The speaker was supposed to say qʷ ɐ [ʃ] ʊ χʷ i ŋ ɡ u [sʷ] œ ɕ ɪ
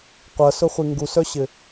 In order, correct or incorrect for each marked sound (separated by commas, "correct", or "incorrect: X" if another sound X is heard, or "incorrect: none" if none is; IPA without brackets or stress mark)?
incorrect: s, incorrect: s